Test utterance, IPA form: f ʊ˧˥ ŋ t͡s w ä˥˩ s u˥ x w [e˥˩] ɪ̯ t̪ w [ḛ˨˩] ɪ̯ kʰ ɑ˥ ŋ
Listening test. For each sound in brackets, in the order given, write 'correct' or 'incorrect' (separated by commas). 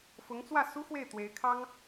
correct, incorrect